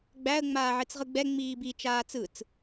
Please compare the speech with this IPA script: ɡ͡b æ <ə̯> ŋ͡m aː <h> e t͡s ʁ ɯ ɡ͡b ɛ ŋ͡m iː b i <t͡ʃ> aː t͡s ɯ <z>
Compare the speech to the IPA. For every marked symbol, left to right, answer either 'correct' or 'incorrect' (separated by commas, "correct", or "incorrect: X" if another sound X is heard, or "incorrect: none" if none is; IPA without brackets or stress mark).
correct, incorrect: ʕ, correct, incorrect: t͡s